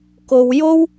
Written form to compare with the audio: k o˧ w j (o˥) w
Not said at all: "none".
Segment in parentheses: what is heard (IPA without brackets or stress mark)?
o˥